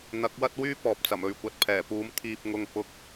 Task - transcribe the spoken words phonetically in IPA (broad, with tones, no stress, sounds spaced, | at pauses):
n̪ ɐ˨˥ k̚ w ɐ˥ t̚ w yː˥ p ɔː˨ p̚ t͡s ɐ˨˩ m ɵ˨ ɥ kʷ ɐ˨ t̚ pʰ ɛː˨˩ p uː˨˥ m t̪ʰ iː˧ p̚ ŋ ʊ˧ ŋ p ʊ˧ k̚